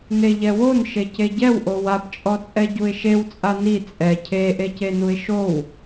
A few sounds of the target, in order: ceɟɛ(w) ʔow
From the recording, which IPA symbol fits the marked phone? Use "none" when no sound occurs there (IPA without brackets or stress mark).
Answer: w